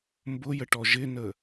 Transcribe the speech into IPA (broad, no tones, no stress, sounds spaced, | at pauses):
m b ʊ j ə ʈ ɔ ʒ ɪ n ə